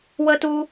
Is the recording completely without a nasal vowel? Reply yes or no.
yes